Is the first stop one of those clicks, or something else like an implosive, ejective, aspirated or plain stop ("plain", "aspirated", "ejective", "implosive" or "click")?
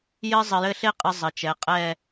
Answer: ejective